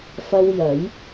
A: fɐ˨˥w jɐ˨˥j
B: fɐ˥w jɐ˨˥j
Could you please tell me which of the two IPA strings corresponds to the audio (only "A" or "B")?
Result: B